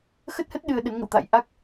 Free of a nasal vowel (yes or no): yes